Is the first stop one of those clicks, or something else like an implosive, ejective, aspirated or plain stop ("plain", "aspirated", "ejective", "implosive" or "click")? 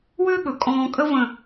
implosive